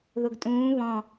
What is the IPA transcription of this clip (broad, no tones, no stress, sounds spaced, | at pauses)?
ð ʊ ɡ tʼ ũː β ɔ̃